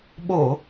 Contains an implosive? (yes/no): yes